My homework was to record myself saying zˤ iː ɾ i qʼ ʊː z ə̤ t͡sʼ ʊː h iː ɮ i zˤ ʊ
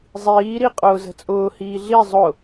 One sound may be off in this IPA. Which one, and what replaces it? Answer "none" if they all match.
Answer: none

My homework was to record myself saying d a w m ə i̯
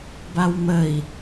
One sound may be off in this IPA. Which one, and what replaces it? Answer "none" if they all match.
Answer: d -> b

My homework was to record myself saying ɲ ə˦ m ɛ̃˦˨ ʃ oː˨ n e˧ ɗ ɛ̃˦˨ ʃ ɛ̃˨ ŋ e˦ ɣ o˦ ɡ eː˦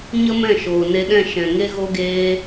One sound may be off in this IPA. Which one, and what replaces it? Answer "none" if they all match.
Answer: none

